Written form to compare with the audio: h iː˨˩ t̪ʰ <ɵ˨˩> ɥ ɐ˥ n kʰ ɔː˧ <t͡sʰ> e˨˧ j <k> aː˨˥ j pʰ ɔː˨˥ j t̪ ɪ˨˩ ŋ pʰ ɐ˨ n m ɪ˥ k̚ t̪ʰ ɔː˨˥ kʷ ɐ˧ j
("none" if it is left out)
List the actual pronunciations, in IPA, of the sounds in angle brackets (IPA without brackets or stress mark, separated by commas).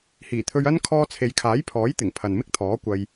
ɵ˧, t͡sʰ, kʰ